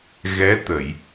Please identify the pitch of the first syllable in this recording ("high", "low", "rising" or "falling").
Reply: rising